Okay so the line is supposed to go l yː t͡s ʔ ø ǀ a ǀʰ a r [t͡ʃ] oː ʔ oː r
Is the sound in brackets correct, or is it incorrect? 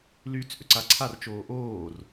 correct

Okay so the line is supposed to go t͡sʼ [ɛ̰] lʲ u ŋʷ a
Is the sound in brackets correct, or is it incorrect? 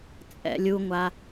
correct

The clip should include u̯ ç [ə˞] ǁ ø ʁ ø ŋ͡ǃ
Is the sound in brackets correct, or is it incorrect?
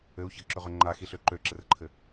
incorrect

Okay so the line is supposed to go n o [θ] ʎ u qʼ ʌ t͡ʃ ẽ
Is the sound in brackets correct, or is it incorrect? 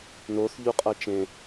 correct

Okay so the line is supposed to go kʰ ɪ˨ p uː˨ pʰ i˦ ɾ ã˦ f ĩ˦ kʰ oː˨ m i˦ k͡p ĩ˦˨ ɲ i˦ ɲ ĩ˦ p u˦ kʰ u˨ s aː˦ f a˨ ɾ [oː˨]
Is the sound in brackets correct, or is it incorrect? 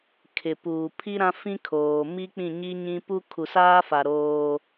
incorrect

